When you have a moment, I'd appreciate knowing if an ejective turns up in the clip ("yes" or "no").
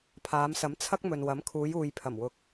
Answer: no